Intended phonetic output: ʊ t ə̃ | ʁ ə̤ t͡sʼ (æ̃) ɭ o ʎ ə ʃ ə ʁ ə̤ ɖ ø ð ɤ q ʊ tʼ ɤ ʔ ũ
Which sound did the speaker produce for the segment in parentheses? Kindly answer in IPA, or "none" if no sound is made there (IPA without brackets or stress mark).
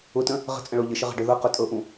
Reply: ə̃